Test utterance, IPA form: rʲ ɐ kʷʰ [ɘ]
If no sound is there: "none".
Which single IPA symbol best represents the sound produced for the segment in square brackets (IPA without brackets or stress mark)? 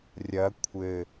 ɘ